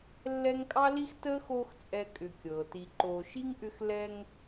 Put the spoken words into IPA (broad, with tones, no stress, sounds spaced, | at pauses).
lː ɛ˦ ŋ kʼ ɑ˥ l i˥ x t əː˥ x oː˦ x t͡sʼ ɛ˦ kʼ ʏ˨ kʲ ɤː˩ t i˨ ǃ oː˨ ʃ i˥ ŋ ʔ ʏ˦ x l ɛ˦ ŋ